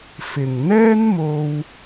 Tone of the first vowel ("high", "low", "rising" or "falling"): low